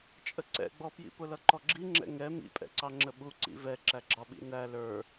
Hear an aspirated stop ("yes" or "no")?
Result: no